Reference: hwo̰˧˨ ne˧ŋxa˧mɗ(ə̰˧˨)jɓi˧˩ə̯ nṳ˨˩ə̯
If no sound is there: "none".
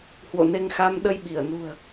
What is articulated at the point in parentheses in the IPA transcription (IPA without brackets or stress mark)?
ə˧